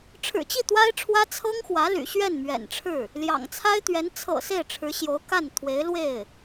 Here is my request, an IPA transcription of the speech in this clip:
ʈ͡ʂʰ ɻ̩˨˩ t͡ɕ i˥˩ t̪ w a˥ ɪ̯ ʈ͡ʂʰ w ä˥ t͡sʰ ɤ˥ ŋ x w ä˧˥ l y̰˨˩ ɕ ɥ ɛ˥˩ n m ɥ ɛ̰˨˩ n ʈ͡ʂʰ ɻ̩˥˩ | l j ɑ̰˨˩ ŋ t͡sʰ a˥ ɪ̯ t̪ ɥ ɛ˧˥ n t͡sʰ ɤ̰˨˩ s e˥˩ ɪ̯ ʈ͡ʂʰ ɻ̩˧˥ ɕ j o˧˥ ʊ̯ k a˥˩ n t̪ʰ w e˧˥ ɪ̯ l w e˥˩ ɪ̯

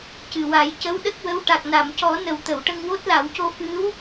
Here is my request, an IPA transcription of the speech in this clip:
c ɨ˨˩ w a˨˩˦ j c ə˧˥ w ɗ ə˦˥ k̚ w ə˧˥ w ʈ a˨˩ k̚ n a˨˩˨ m c ɔ˨˩˦ n ə˨˩˦ w t̪ ə˨˩˨ w ʈ ə˧ ŋ w o˦˥ t̚ l a˨˩˦ w c o˧ f ɨ˧˥ w

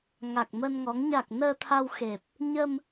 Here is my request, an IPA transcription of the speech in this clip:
ŋ a˨˩ k̚ m ə˧ n ŋ ɔ˨˦ ŋ ɲ a˨˩ k̚ n əː˧ t̪ʰ a˧ w x e˨˩ p̚ | ɲ ə˧ m

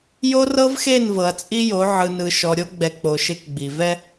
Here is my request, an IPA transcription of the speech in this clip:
j o˦ r ɤ˦ v x e˦˨ n v ɤ˨ ɐ̯ t͡sʼ i˦ j o˨˦ ʕ ɯ˨ n ɯ˨ ʃ ɔ˨ ɾʲ o˦ ɡ͡b ɛ˨ k͡p o˨ ʃ e˦ k ɡ͡b i˨ v ɛ˦

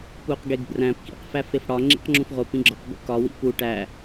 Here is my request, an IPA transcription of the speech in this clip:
p u q ɡ e ɡ b r æ̃ p k ḭ q f æ f e f ɽ ɒ ŋ͡ǁ ḭ q ŋ͡ǁ ũ f ʁ o p ĩ ɡ͡ǁ ɒ q b ṵ k ɒ w ḭ p u ʈ æ

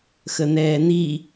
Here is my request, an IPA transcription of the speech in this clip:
x ə n̪ ɛː n̪ i

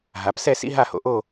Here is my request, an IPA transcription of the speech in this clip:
ɦ a˩˧ p s ɛ˥˧ s ḭ˥ ɦ a˥˧ h o̰˧ ʔ o˥˧

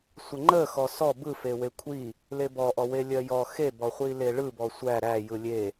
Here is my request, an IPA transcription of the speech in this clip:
sʷ ə ŋ͡ǃ ə x ɔ s ɔ b ɯ f e w e kʷʰ i | l e b ɔ ʔ ɔ w e lʲ ɜ j ɔ x e b ɔ χʷ i l e ɭ ɯ b ɔ sʷ æ ɾ æ j ɯ lʲ e

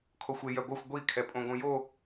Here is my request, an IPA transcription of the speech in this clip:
kʰ o xʷ e j œ ɡʷ œ xʷ ɡʷ i kʰ ɛ pʼ õ ɡ õ j o

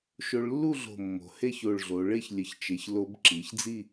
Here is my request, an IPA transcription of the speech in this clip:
ʃ o˧ ɭ lː u˥˧ ɮ o̤˧˩ mː o̤˩˧ h e˥˧ ç o˧˩ ɭ ɮ o˩˧ ɭ e˥˧ ç lʲ ə˧˩ ç t͡ʃ e˩˧ ç l o˧ b ǁ i˩˧ ç d͡z i˥˧

